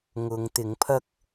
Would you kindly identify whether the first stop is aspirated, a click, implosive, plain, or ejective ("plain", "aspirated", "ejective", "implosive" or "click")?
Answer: plain